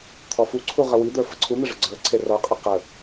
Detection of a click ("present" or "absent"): present